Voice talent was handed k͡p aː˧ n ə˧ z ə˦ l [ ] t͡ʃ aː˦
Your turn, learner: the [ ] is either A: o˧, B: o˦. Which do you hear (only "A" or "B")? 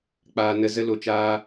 A